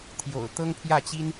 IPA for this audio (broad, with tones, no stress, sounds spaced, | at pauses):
t̪ʰ j o̰˨˩ ʊ̯ t̪ ɤ˥ ŋ pʰ j ä˥˩ t͡ɕ i˥ n